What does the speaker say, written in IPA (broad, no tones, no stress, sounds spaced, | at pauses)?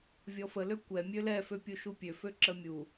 vʲ ɔ f ə l ø kʷ ɛ mʲ ø l ɛ f ø pʲ u ʃ u pʲ ø f ø ǁ ə mʲ u